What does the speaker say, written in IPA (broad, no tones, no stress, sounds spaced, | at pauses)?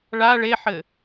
ɭ a ɭ e ħ ɘ